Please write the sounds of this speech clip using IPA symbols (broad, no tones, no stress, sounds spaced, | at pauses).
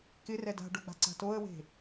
k ɪ r ɛ d a̤ ɖ o ɡ͡b a̤ ǀ a̤ t o ə̯ w e̤